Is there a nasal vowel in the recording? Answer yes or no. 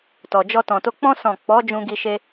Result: yes